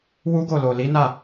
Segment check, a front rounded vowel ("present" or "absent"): absent